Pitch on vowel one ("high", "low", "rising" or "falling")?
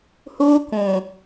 high